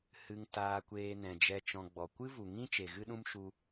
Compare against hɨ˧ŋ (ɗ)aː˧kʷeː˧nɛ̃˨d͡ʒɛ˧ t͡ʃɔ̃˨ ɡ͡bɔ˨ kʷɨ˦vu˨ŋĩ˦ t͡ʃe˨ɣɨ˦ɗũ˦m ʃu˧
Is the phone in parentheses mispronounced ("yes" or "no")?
yes